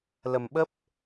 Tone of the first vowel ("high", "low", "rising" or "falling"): low